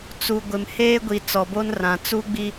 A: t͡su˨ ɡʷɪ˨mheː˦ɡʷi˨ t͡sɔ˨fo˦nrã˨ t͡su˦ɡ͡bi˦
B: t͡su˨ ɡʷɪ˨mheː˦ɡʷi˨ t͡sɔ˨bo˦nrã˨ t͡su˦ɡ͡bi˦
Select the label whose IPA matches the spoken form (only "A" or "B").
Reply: B